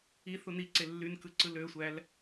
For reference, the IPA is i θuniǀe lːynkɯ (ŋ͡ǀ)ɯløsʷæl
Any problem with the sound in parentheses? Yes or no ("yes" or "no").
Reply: yes